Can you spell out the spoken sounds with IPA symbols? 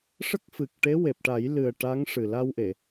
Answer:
ʂ ə˦˥ k̚ f ɨ˨˩ k̚ ʈ e˧˥ w e˨˩ p̚ ʈ a˨˩˦ j l ɨ˨˩ ə̯ ʈ a˧˥ ŋ ʂ ɨ˨˩ l a˧ w ʔ e˨˩˨

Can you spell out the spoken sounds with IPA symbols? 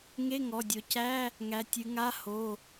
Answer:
ŋ e˧˥˧ ŋ ɔ˩˧˩ dʲ o˩˧ c æ˧˥˧ | ŋ æ˩˧ tʲ ɨ˩˧ ŋ a˧˥˧ h o˩˧˩

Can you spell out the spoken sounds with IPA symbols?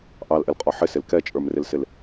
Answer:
ʔ ɑ l ʔ ɪ l qʼ ɔ ħ ɪ s ɪ l k ɛ t͡ʃʼ ə˞ m r ɪ l s ɪ l

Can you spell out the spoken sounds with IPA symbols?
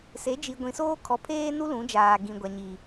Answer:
s e˨˦ d͡ʒ i˨ ɡʷ ĩ˨ s oː˦ kʰ ɔ˨ pʰ eː˦ n u˦ l ũ˨˦ d͡ʒ aː˨ ɡ ĩ˨ ɡʷ a˨ ɲ i˨

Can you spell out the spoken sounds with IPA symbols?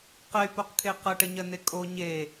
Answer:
q ɛ y̯ p o q kʰ e q ʌ ʈ ə ɲ ɜ n e kʼ o ɲ e

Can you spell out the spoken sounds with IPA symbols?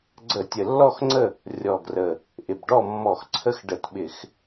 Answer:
ɡ͡ǀ ə˧˩˧ tʲ ə˨˩ lː ɔ˥˨ x ŋ͡ǀ ə˥˨ | rʲ ɔ˨˩ ɡ r ə˨˩ | ʔ ɪ˨˩ b ɖ ɔ˥˨ mː ɔ˧˩˧ x ǀʰ ə˥˨ x ɖ ə˧˩˧ t ɓ ɪ˧˩˧ x

